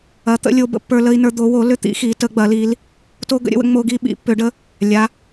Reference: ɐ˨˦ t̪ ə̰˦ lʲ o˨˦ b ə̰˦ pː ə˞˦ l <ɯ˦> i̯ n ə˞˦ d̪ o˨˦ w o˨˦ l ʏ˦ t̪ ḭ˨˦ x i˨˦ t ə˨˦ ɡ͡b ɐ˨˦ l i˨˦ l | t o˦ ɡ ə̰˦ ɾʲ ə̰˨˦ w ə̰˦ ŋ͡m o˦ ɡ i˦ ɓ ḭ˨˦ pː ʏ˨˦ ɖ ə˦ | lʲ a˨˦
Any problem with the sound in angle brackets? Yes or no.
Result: yes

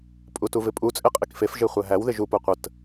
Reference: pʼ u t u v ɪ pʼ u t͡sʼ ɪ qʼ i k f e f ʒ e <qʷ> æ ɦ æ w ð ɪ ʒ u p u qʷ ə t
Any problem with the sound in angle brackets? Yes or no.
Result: yes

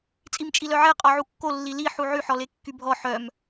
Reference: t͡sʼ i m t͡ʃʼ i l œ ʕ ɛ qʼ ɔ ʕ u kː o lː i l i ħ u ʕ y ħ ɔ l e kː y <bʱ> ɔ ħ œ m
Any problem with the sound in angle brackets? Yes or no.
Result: no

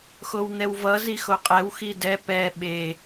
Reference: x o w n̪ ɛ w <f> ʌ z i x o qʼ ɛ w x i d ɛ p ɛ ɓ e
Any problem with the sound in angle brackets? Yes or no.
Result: yes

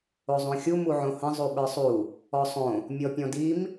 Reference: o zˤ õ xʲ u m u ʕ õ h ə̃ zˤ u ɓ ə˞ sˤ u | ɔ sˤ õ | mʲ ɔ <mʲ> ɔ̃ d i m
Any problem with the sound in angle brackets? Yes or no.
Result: yes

